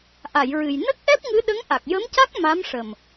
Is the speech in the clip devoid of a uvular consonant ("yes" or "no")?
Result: yes